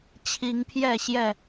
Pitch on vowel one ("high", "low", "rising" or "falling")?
rising